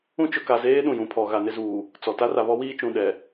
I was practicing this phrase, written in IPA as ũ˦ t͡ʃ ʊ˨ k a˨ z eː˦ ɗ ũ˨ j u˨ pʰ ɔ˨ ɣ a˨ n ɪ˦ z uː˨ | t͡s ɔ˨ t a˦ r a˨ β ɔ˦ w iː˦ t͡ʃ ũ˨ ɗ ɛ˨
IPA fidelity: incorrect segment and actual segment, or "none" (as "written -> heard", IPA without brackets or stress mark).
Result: u˨ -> ũ˨